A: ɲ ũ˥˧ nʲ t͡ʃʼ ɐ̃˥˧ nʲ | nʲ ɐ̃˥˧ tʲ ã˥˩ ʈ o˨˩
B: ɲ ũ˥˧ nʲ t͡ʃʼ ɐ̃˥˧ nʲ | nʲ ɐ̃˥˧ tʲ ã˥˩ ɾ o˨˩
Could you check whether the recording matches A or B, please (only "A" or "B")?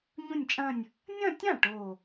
A